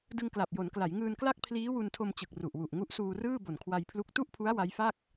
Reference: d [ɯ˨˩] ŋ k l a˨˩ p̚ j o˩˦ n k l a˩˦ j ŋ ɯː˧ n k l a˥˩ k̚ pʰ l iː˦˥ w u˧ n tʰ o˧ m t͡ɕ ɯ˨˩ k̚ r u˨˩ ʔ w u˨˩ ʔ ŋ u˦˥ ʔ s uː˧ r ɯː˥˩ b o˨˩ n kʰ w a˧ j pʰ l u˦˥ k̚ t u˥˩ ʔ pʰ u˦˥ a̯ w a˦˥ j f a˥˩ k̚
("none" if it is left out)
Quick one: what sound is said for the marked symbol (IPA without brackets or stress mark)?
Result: ɯ˧